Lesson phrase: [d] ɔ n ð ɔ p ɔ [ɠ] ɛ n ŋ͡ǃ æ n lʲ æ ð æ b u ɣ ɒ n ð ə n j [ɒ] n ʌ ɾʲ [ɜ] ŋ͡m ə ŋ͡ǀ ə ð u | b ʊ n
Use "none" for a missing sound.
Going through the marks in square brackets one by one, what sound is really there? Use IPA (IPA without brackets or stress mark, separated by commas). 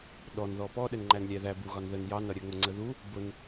ɗ, ɗ, ɑ, ɜ